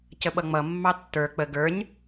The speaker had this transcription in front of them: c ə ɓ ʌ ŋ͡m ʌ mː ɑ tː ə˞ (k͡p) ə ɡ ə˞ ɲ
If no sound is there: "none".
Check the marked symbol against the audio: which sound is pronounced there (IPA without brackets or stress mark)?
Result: k͡p